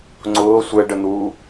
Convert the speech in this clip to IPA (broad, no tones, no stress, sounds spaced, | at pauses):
ŋ͡ǀ ʊː sʷ ɛ ɖ ə n̪ uː